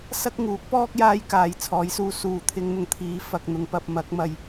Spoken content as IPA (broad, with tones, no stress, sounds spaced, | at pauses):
s ɐ˥ k̚ ŋ uː˨˥ k̚ p ɔː˥ k̚ j aː˥ j k aː˨˧ j t͡sʰ ɔː˨˥ j s uː˧ s uː˨ t̪ʰ ɪ˧ ŋ n̪ ʊ˧ ŋ t̪ʰ iː˨˧ f ɐ˧ k̚ n̪ ʊ˧ ŋ p ɐ˧ p̚ m ɐ˨˥ k̚ m ɐ˧ j